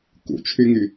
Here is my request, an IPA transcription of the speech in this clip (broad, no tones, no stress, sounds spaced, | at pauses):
k ṵ t͡ʃʰ y ŋ y